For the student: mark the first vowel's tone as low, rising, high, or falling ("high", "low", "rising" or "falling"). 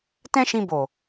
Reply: high